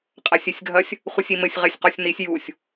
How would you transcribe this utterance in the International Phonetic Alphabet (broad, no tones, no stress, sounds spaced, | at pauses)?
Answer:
qʼ a sʲ e sʲ ɡʱ ɐ sʲ | χʷ ɨ sʲ i m ɘ sʲ ʁ e sʲ q ɔ sʲ n i sʲ j u sʲ